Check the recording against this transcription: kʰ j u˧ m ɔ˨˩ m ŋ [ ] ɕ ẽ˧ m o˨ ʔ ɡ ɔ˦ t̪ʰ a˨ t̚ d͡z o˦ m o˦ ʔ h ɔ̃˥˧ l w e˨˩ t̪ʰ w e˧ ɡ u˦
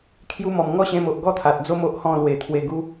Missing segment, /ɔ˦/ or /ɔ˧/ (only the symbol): ɔ˦